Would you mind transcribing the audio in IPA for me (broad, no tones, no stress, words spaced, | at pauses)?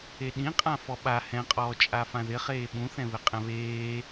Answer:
eɗĩ qʼãfɔɓa hɛ̃qʼɔː t͡ʃʼafãðɪ χeːɓũθɛ̃βɪ qʼɛ̃βeː